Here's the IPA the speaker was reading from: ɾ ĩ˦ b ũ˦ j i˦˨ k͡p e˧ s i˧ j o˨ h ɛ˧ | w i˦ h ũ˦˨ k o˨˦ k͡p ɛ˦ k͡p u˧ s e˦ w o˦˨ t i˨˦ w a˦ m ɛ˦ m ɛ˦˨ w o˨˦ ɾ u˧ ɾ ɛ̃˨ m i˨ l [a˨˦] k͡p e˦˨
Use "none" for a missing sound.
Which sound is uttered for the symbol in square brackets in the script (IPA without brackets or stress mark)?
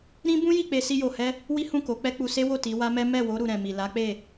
a˨˦